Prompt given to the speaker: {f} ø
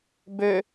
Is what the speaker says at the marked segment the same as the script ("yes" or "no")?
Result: no